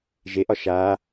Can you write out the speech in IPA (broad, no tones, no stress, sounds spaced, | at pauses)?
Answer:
ʒ e ʔ ɒ ʃ a